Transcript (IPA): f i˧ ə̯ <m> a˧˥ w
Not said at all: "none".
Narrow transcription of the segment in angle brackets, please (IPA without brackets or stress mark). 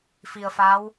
f